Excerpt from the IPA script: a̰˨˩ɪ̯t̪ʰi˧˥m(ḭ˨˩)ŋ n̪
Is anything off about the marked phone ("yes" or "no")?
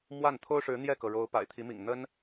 no